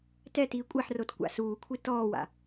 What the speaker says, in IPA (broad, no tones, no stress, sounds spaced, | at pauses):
t ɛ t iː kʷʼ ɛ ħ r o t kʷ a̰ s uː kʷʰ i t ɔː w a̰